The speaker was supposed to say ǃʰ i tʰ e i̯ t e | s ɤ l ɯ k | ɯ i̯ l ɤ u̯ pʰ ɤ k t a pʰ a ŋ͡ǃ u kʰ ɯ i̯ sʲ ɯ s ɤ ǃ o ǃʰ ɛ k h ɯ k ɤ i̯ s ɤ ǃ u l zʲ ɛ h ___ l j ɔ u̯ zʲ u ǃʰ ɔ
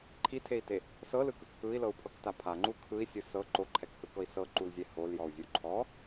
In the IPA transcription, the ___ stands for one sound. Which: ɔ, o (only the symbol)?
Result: o